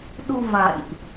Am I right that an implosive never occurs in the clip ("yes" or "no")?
no